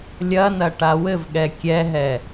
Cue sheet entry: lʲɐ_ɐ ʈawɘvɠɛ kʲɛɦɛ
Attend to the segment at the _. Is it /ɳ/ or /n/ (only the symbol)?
n